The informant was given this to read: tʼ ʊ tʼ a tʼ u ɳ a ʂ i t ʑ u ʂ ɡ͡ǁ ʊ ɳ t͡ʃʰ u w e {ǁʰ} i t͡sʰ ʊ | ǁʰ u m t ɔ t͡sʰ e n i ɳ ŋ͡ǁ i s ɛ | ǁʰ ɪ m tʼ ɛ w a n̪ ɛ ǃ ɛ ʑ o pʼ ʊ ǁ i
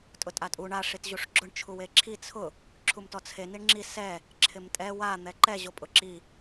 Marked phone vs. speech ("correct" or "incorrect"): correct